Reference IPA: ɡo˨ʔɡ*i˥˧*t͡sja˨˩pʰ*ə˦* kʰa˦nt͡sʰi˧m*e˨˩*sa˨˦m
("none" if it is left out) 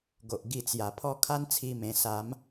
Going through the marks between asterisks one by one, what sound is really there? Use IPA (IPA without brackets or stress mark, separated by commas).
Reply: i˧, ɔ˦, ẽ˨˩